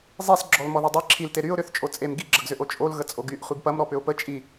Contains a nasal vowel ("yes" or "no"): no